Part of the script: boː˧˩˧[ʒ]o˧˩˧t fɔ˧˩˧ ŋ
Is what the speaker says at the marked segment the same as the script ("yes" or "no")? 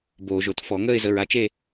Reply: yes